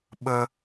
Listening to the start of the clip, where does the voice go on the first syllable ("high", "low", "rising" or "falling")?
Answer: high